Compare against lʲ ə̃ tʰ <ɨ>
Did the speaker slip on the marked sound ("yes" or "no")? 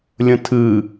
no